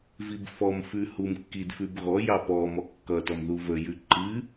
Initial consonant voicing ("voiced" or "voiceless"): voiced